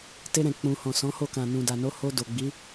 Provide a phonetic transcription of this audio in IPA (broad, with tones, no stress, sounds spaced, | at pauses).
t e˧ ɾ ɛ̃˨ k͡p ũ˨ h ɔ̃˨ s ɔ̃˨˦ h o˦˨ k ã˨ n ũ˨ d a˨ n o˨˦ h o˧ d o˨ ɡ͡b i˨˦